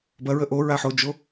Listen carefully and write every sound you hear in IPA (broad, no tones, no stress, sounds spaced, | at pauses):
b ɐ ɹ ə ʔ o ɹ a ħ o d͡ʒ o